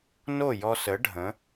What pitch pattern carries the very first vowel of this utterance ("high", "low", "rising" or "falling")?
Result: falling